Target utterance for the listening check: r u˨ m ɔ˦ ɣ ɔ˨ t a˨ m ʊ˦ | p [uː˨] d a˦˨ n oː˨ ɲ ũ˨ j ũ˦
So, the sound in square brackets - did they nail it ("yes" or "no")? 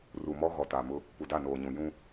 no